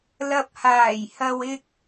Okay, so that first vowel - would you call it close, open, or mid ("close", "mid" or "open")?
open